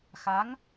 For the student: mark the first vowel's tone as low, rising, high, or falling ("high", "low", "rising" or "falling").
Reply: rising